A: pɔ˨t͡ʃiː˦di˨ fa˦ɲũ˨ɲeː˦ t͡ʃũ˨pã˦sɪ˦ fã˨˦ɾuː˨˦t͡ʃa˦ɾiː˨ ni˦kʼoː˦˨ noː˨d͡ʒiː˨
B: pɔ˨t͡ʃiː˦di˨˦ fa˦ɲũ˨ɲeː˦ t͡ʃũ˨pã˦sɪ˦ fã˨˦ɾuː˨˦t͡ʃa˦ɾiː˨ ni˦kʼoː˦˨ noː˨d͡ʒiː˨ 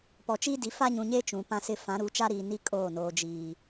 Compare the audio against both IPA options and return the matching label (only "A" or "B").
B